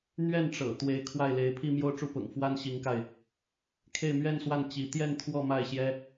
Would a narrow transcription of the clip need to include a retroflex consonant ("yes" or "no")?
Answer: yes